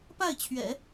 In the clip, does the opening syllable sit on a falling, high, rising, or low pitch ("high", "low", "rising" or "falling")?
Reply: falling